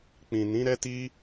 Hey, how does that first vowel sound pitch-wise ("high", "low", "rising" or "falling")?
low